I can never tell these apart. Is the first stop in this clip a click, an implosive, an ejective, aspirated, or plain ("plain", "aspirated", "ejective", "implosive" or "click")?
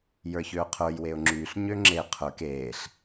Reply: aspirated